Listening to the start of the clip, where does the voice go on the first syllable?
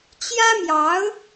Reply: high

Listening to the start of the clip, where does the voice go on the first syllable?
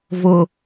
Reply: low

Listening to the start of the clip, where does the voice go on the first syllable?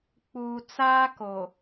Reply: low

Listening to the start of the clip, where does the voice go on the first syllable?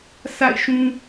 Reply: falling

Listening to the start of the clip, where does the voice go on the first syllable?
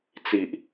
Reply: low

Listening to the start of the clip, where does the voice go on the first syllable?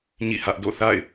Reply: falling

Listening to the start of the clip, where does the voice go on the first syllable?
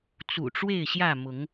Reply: low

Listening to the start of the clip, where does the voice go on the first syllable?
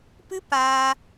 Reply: high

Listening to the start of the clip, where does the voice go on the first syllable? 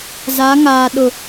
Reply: rising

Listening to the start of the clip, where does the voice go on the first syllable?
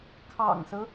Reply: low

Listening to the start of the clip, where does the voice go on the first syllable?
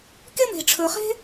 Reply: high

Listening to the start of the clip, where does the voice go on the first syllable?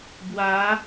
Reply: rising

